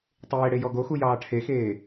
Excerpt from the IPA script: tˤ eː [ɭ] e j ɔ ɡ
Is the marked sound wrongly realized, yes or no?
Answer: yes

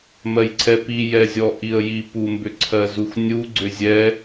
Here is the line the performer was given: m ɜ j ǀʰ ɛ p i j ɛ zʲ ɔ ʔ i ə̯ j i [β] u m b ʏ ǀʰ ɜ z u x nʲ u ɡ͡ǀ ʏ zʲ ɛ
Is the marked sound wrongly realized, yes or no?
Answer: yes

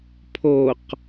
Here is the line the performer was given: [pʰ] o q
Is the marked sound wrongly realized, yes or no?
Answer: no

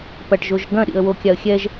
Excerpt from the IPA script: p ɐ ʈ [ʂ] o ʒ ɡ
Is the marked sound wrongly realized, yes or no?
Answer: yes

